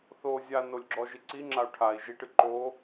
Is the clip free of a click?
no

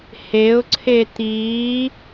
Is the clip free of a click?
no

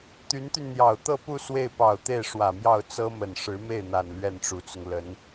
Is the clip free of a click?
yes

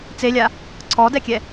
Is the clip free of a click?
no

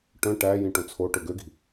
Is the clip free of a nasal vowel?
no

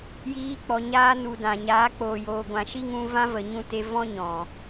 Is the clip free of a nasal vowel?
no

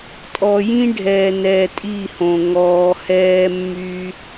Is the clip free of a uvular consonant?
yes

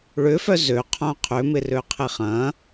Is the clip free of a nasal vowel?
no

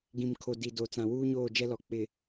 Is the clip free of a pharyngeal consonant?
yes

